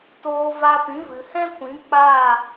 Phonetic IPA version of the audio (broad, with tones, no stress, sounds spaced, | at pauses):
t oː˧ v a˧ p ĩ˨˦ v ɨ˨ h ɛ̃˦ kʷ ĩ˨˦ k͡p aː˦˨